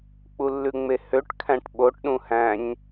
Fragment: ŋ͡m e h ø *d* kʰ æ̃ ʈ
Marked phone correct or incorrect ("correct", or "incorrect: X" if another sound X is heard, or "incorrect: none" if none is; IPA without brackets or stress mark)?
incorrect: ʈ